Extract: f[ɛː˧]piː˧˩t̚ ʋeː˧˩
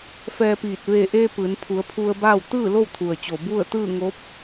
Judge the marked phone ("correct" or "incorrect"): correct